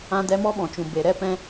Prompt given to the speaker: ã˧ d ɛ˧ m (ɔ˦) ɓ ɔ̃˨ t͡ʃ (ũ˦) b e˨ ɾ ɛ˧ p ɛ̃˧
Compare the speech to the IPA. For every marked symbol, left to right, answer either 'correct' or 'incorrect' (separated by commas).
correct, incorrect